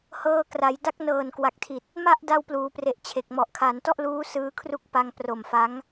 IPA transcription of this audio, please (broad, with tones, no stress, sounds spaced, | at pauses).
h ɤː˧ k r a˩˦ j d a˦˥ k̚ n ɤː˨˩ n k w a˨˩ k̚ tʰ i˨˩ t̚ | m a˥˩ ʔ d a˧ w p l uː˩˦ p r e˨˩ ʔ t͡ɕʰ e˨˩ k̚ m ɔ˨˩ ʔ kʰ a˩˦ n t ɔ˥˩ ʔ l uː˦˥ s ɯː˦˥ kʰ r u˥˩ k̚ p a˧ ŋ p r o˨˩ m f a˦˥ ŋ